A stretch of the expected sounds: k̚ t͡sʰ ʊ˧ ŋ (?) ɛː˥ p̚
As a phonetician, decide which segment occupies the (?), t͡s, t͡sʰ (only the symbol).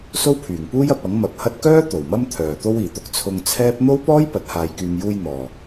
t͡sʰ